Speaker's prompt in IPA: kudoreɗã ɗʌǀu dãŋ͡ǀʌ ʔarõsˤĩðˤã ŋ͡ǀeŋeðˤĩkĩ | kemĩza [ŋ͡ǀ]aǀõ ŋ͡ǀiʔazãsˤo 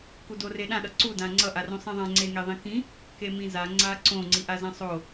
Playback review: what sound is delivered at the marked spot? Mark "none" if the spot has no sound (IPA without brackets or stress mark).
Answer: ŋ͡ǀ